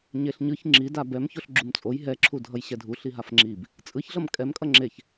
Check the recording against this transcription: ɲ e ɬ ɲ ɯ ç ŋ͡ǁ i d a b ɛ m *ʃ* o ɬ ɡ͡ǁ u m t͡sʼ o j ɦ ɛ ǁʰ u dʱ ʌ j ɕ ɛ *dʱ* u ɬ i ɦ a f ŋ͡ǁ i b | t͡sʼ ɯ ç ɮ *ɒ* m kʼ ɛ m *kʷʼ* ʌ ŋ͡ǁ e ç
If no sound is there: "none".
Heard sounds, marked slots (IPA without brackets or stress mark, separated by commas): ç, dʱ, ʌ, kʼ